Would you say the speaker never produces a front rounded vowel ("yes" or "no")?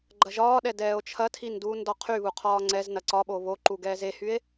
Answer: no